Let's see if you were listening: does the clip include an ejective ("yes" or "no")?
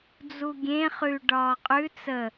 yes